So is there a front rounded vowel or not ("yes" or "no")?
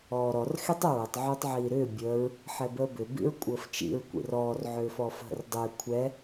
yes